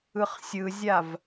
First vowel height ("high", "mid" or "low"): high